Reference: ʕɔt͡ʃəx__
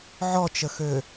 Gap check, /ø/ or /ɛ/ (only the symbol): ø